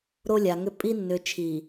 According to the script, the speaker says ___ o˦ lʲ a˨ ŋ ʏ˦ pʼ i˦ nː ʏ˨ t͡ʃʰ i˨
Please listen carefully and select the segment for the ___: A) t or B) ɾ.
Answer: B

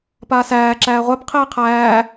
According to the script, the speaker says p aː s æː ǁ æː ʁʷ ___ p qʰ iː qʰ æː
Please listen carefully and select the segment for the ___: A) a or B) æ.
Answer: B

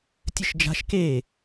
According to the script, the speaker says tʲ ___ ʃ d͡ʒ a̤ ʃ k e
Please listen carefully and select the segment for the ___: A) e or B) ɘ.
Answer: B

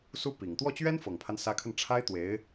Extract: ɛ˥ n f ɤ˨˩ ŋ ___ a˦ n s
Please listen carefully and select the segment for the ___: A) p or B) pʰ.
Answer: B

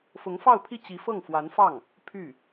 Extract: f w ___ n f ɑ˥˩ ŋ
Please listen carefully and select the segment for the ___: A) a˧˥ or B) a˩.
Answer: A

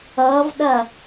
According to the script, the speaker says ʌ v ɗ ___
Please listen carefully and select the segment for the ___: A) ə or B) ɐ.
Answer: B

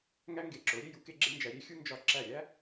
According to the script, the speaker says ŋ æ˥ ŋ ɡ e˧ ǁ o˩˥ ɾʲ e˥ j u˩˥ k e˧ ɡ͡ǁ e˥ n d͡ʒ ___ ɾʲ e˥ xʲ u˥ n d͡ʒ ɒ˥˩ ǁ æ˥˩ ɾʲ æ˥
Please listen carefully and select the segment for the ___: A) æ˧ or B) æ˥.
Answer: A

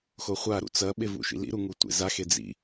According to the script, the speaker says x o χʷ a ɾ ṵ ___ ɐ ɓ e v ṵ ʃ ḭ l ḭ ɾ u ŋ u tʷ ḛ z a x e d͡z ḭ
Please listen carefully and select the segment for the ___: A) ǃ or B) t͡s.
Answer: B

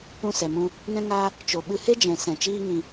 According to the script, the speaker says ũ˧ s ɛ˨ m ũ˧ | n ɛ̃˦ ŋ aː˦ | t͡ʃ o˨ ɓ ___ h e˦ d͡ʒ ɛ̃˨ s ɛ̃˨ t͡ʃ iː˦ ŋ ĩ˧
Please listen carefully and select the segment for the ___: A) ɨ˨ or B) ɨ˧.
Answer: B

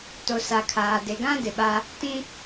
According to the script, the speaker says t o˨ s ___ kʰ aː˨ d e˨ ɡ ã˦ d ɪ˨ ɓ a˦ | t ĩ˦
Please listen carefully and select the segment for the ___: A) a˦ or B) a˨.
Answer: B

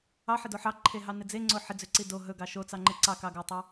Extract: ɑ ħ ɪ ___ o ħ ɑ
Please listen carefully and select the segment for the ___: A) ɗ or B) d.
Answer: B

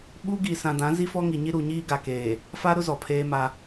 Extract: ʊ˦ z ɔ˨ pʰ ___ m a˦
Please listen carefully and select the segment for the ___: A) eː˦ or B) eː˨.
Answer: A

